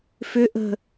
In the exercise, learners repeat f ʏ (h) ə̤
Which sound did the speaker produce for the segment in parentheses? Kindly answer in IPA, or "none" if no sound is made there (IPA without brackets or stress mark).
ʔ